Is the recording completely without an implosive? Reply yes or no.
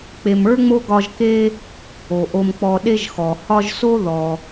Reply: no